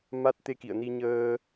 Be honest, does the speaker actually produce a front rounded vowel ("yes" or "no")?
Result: no